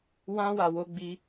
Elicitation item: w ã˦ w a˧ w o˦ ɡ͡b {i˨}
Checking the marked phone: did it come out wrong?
yes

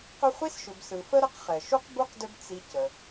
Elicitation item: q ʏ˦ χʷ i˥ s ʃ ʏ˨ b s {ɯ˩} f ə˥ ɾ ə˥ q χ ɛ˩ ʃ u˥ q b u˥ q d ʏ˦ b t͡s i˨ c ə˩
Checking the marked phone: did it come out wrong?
no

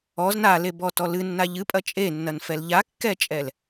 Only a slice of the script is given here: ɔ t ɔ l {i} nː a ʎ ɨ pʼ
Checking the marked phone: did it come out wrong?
yes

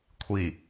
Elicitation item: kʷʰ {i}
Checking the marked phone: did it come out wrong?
no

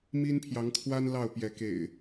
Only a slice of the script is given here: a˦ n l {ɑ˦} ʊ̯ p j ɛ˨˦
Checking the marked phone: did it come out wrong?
yes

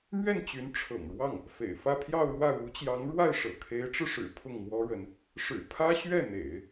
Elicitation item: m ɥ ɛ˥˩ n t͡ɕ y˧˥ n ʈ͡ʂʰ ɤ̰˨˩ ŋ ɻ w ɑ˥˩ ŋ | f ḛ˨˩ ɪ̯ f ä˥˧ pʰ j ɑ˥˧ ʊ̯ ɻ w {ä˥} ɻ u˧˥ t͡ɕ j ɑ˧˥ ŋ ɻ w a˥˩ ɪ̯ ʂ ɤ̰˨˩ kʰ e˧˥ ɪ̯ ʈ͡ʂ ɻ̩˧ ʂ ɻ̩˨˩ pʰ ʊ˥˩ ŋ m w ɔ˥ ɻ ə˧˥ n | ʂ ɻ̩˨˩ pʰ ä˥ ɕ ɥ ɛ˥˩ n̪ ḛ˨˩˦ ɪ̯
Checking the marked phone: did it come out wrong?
yes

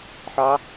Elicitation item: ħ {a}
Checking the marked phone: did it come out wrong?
yes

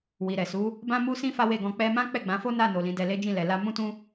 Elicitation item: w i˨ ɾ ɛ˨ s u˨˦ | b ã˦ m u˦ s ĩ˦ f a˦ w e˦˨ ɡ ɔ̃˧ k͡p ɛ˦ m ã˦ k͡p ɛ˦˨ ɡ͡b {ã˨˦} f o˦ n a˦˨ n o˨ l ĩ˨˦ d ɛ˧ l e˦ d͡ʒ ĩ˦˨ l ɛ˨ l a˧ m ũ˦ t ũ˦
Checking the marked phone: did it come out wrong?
no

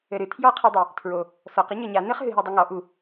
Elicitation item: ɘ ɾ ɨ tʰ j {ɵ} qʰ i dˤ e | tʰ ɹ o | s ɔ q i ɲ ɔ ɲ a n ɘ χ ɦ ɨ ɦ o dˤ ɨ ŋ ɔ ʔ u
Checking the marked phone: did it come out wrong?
yes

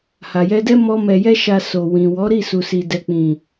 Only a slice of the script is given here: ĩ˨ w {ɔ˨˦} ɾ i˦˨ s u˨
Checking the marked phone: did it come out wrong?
no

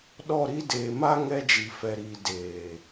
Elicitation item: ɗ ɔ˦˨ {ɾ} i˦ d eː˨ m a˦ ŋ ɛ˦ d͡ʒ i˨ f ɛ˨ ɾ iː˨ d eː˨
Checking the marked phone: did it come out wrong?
no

